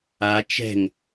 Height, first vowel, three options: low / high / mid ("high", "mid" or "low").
low